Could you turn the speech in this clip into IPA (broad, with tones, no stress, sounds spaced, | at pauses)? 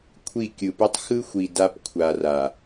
kʷʰ i˦˨ kʲ ɯ˨ p u˦ tˤ x ɯ˦ xʷ i˨ d a˦ p kʷʰ a˨ r a˨